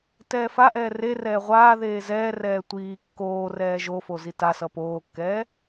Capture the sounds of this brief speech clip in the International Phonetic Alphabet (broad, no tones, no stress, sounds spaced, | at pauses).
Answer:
t ɛː f a ʔ ɛː r e r ɛː ʁʷ aː ð eː z ɛː r ɛː tʷ iː kː oː r ɛː ʒ o f o z i t a s ʌ p oː kː ɛː